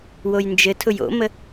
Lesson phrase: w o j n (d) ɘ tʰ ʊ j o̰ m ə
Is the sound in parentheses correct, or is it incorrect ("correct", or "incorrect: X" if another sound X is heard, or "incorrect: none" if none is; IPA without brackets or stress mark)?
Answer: incorrect: d͡ʒ